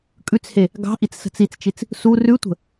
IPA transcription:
kʼ ʉ t͡s h e | ɡ ɑ̤ ʔ i t͡s s ə̤ t͡s i t͡s t͡ʃ i t͡s | s u r ʉ tʷ ə̤

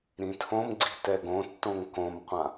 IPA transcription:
ɾ ĩ tʰ õ m ɡ͡ǀ i̤ t ɛ ɡ õ tː õ ŋ k õ m qʷ ã

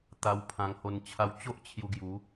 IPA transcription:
t̪ a˧ w pʰ ã˧ ŋ h o˧ n t͡ɕʰ a˧ w t͡ɕ o˦ ʔ t͡ɕʰ j u˧ ɡ j u˨˦

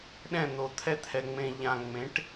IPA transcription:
ɗ ɛ̃˦˨ n̪ o˨ t̪ʰ ɛ˦ t̪ʰ ɛ˨ ŋ͡m ẽ˨ ʎ ã˨ ŋ͡m ẽ˨˦ ʈ

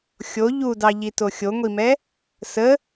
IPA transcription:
xʲ o ʎ u d ɑ ʎ i t o xʲ o ŋʷ i m ɛ | s ə

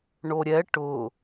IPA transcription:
ɳ o ɾʲ ɛ ʈ ʊ

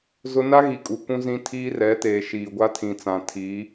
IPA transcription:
z ʊ˦ n a˦ ɣ i˨ kʼ u˨ k ũ˦ z ĩ˦ tʰ iː˦ r ɛ˨˦ t eː˨ ʃ iː˨ ɡʷ a˦ tʰ ĩ˨ t͡s ã˨ tʰ i˨˦

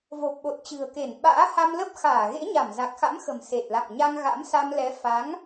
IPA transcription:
v o˨˩ p̚ ɓ o˨˩ t̚ t͡ɕ ɨ̤˨˩ ə̯ k e˧˩ n ɓ a̰ː˧˥ h a˧ m l ə˦˥ p̚ x aː˧˩ ɣ ḛ˧˥ ɲ a˧˩ m z a˨˩ k̚ x a̰˧˥ m x ə̤˨˩ m s e˨˩ t̚ l a̰˧˨ ŋ ɲ a˧ ŋ ɣ a̰˧˥ m s a˧ m l ɛ˨˦ f a˨˦ ŋ

